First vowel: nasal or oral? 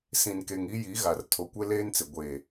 nasal